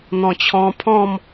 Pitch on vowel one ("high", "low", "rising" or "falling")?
low